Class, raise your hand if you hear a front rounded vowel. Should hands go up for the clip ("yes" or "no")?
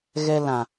no